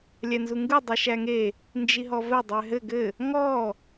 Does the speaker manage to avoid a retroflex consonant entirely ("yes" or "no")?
yes